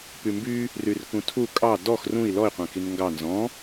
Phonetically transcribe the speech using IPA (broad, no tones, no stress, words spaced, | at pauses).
pymby | ryrkũtʰu kʼɑ dɔx rũi̯ lɔi̯ qʷɛ̃kinŋɡɑ nzɔ̃